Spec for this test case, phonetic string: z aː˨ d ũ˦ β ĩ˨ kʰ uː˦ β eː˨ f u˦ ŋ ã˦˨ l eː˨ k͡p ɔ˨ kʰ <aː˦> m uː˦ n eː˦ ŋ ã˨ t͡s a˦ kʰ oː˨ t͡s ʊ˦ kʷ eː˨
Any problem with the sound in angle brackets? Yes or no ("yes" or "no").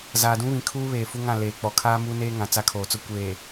no